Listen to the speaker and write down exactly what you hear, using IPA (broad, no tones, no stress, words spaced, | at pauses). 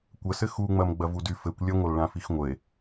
kʷəsɘ xuŋ͡mɐm ɡ͡bɐvudy fɘkʷ lʲɐŋʷɐl ɭãfixŋʷəe̯